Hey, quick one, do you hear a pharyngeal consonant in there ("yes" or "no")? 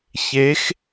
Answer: no